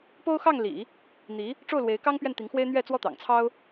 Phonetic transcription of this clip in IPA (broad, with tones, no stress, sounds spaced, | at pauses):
p o˥ ʊ̯ x ɑ˥˩ ŋ l ḭ˨˩˦ | n̪ i˧˥ | ʈ͡ʂ o˥˩ ʊ̯ l w e˧˥ ɪ̯ k ɑ˥ ŋ p ɥ ɛ˥˩ n t̪ i˧˥ ŋ x w e˥ ɪ̯ n̪ ɥ ɛ˥˩ t͡s w ɔ˥ t̪ ɑ̰˨˩ ŋ t͡sʰ ɑ˥ ʊ̯